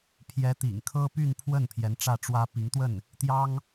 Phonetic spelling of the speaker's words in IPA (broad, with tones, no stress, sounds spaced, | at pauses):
pʰ j ɛ˧˥ t̪ ḭ˨˩ ŋ kʰ ɤ˥ p y˥˧ n pʰ w ə˥˩ n pʰ j ɛ˧˥ n ʈ͡ʂ ä˥˩ ʈ͡ʂ w ä˥ p i˧˥ ŋ t̪ w ə˥˩ n | t̪ j ɑ˥ ŋ